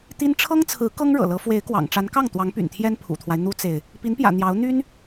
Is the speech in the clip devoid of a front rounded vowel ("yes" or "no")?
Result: no